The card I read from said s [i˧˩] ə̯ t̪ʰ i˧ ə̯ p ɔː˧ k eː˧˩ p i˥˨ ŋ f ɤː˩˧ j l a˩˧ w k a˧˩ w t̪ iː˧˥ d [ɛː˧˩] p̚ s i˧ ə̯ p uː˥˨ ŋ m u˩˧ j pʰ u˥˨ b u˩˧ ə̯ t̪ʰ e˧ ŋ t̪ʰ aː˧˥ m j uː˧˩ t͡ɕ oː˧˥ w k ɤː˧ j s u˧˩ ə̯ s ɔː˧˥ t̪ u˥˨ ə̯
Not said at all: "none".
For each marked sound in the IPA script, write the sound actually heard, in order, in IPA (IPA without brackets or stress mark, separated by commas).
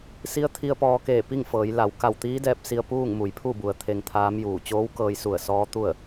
i˧˥, ɛː˧